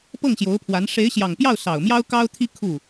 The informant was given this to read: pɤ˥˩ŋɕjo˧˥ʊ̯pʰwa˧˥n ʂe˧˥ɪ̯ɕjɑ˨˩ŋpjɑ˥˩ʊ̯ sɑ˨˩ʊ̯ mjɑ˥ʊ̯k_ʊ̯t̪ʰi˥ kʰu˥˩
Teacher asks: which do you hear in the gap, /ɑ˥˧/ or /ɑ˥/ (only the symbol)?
ɑ˥